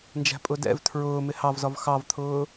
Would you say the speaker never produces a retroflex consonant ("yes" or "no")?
yes